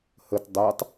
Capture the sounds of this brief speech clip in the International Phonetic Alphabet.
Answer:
h ə t dˤ a tˤ

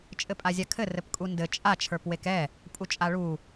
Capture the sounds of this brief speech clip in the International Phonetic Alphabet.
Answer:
t͡ʃʼ ɘ pʼ a zʲ a kʰ ɘ r ɘ p kʼ u n d ɘ t͡ʃʼ a t͡ʃʰ ə˞ p w e k ɛ | pʼ u t͡ʃʼ a ɭ u

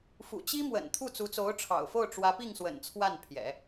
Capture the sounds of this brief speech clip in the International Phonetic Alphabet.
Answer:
f ṵ˨˩ t͡ɕ i˥ m w ə̰˨˩ n t̪ʰ u˥˩ t͡s u˧˥ t͡s o˧˥ ʊ̯ ʈ͡ʂʰ ɑ̰˨˩ ʊ̯ f o˥˩ ʊ̯ ʈ͡ʂ w ä˧˥ p i˥˩ ŋ s w ə̰˨˩ n t͡sʰ w a˥˩ n pʰ j ɛ̰˨˩˦

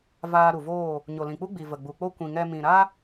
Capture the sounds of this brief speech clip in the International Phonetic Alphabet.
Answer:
v aː˧ ɾ u˨ v oː˦˨ | ɲ o˨ l ĩ˨ k͡p u˦ ɡ͡b i˨ v ə˨ ɡ͡b u˨ k͡p o˦ kʷ ĩ˨ ŋ ɛ˧ m ĩ˨ ɾ a˦

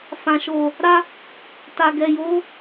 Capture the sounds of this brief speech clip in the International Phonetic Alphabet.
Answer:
f ã˨ ʃ o˨ | ɾ a˦ | t a˨ ɡ ɛ˨ j o˨˦

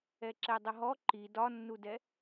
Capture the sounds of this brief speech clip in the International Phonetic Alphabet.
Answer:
ɛ ǁ ɛ dˤ ə ɦ ɔ ǃ i d ɒ nː u d ɛ

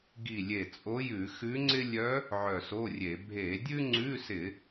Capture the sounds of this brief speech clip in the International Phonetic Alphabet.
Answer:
ɡ i˧˩ lʲ e˧˩ t͡sʼ o˧˥ j ʉ˧˩˧ x ʉ˧˥ ŋ͡ǀ ɪ˥ lʲ œ˧˥ | ʕ œ˧˩ s o˧˥˧ rʲ e˧˩˧ bʱ e˧˩˧ dʲ ʉ˥ ŋ͡ǀ ʉ˧˥˧ s ɪ˧˩˧

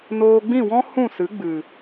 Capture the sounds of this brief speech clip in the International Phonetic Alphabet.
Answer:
n oː˧ ɡ͡b ĩ˦˨ w ɔ̃˦ h ũ˦˨ s ɨ˨˦ ɡ͡b ɨ˨

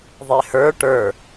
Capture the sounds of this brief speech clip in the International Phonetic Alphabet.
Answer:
ðˤ e h ə˞ ʈ ə˞

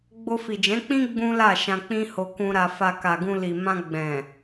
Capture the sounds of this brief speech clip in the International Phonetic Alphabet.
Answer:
ɡ͡b o˧ f i˨ d͡ʒ ɛ̃˨˦ k͡p ĩ˦ ɡ͡b ũ˦ l a˦˨ ʃ ã˧ k͡p ĩ˦ h o˧ k ũ˧ ɾ a˧ f a˧ k a˨ ɡ ũ˧ l i˨ m ã˧ ɡ͡b ɛ̃˨

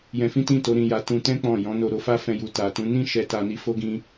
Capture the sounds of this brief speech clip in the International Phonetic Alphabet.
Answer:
j ɛ̃˧ f ĩ˦ t ĩ˦˨ t o˨˦ ɾ ĩ˧ j a˧ t ũ˧ t ɛ̃˦ k͡p ɔ̃˦˨ j ɔ̃˨˦ n o˧ ɾ o˧ f a˦ f ɛ̃˧ j u˨ t a˨ t ũ˨˦ n ĩ˦ ʃ ɛ˧ t a˧ n i˧ f o˦ ɡ ĩ˧

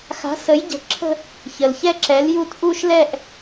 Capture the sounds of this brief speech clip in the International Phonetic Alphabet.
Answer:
x a̤˨˥ s ə˨˥ j ɟ ə̤˨˥ ǁʰ ə̤˥˧ | ç ə˩ l ç ɛ˥˧ ǁ ɛ˨˥ l j u˥˧ t ʔ u˥˧ ʃ l ɛ˥˧ ʔ

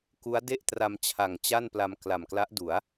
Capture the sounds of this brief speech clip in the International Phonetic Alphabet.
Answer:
k u˦˥ a̯ d e˥˩ ʔ t r a˧ m t͡ɕʰ a˨˩ ŋ t͡ɕ a˥˩ n p l a˧ m k l a˨˩ m k l a˦˥ ʔ d u˩˦ a̯

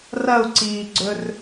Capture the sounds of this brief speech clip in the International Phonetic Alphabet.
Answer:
r ɐ u̯ ǀ iː ɡ͡ǀ ɵ r

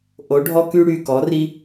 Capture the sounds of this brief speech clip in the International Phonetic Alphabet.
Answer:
ʔ o˩˥ ɖʱ ɔ˦ k y˦ ɽ y˩˧˩ k ɔ˩˥ r i˦

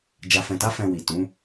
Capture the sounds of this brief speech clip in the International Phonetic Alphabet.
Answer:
d͡ʒ a˨ f ɛ̃˨ t a˨˦ f ɛ̃˧ w i˨ t ũ˨˦

